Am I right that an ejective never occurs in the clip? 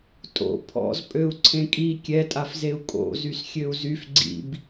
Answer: no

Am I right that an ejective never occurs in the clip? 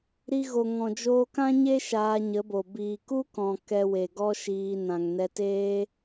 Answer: yes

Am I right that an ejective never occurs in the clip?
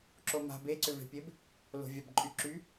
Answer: no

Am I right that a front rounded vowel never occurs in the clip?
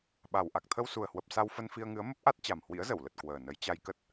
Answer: yes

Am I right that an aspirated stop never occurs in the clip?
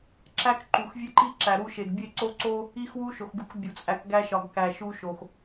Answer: yes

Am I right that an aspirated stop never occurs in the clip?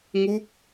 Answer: yes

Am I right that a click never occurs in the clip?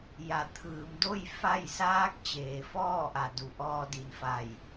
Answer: yes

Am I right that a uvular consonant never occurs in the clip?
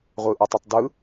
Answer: no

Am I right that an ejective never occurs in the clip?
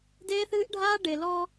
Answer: yes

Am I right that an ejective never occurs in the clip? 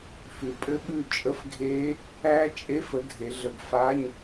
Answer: no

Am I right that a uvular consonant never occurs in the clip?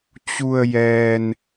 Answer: yes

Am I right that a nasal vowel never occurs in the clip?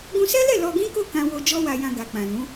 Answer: no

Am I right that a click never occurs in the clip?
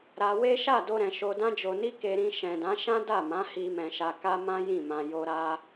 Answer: yes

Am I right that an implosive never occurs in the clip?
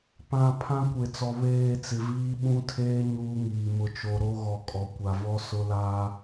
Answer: no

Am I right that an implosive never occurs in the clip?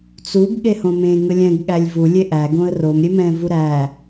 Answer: no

